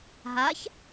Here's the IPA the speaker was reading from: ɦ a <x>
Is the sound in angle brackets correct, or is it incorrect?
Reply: incorrect